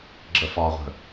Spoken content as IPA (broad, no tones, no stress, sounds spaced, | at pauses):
ɡ͡ǁ ə f ɒ ʁʷ ə̤